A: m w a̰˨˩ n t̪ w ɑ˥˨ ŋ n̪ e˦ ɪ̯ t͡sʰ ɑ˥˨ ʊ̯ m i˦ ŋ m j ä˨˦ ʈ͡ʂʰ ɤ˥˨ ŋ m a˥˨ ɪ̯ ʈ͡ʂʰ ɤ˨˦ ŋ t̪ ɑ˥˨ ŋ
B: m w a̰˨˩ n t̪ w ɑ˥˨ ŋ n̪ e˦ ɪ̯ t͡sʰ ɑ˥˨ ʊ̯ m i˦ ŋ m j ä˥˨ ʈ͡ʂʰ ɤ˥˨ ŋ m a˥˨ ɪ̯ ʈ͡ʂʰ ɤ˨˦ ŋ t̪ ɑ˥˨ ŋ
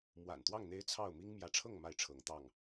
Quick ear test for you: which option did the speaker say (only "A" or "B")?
A